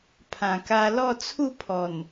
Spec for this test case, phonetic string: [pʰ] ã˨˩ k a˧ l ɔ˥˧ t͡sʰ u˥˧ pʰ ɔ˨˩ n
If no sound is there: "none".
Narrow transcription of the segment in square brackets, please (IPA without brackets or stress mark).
pʰ